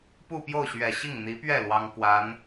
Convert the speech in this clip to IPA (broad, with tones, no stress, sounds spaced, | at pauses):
p u˥˧ p j o˥˩ ʊ̯ ɕ ɥ ɛ˨˩ ɕ i˥˩ ŋ n̪ i˧˥ p ɥ ɛ˥˩ l w ɑ˥ ŋ k w a˧˥ n